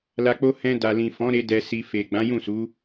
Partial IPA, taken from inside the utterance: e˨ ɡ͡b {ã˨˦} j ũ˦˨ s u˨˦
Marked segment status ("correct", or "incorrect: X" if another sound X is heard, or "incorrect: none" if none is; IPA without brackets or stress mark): correct